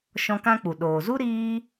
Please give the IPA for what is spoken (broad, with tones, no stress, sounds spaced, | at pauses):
ʃ ɔ̃˧ k ã˦ k͡p u˨ ɗ oː˨ z u˦ ɾ iː˧